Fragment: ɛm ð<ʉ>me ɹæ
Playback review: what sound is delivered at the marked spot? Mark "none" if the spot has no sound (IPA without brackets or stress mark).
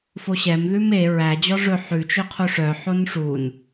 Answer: ʉ